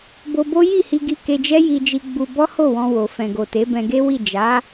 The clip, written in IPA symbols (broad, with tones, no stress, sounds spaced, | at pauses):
b o˧ b o˦ j i˦˨ h i˧ ɡ i˧ k e˧ d͡ʒ ɛ˦ j i˧ d͡ʒ i˧ ɡ͡b u˧ b ɔ˦ h o˦˨ w ɔ̃˧ w o˨ f ɛ̃˨ ɡ o˨ t e˨˦ b ɛ̃˧ ɡ e˦ w i˦˨ d͡ʒ a˨˦